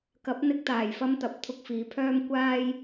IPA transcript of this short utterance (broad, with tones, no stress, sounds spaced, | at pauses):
k ɐ˨˥ p̚ n̪ ɪ˧ k̚ t̪ aː˨˩ j f ɐ˧ m t̪ ɐ˨˥ p̚ t̪ʰ ʊ˧ k̚ f iː˨ pʰ œː˥ m kʷ aː˧ j